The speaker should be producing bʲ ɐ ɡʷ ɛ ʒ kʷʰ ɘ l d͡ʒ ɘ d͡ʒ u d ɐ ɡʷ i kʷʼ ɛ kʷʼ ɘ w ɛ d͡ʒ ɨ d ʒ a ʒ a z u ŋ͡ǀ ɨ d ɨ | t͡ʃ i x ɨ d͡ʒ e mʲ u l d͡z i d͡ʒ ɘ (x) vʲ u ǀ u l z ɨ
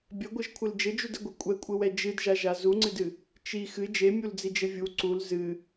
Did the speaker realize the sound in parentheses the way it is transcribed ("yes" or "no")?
no